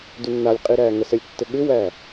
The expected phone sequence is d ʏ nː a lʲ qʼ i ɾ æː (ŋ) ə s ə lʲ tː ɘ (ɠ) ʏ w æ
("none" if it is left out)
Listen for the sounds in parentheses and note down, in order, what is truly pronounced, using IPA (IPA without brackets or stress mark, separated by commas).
ŋ, ɠ